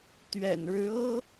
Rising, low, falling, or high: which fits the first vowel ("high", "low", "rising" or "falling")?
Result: low